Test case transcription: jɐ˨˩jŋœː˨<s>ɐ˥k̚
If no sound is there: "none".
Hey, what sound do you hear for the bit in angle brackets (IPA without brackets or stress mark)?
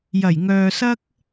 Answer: s